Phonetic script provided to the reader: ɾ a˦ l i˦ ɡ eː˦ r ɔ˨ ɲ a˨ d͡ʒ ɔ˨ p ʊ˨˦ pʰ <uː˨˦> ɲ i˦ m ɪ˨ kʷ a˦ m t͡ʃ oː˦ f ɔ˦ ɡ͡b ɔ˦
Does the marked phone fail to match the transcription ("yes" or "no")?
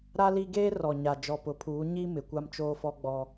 no